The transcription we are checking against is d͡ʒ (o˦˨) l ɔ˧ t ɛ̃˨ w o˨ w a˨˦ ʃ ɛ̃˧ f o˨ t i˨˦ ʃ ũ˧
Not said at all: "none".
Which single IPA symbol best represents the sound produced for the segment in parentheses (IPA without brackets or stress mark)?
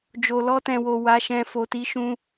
o˨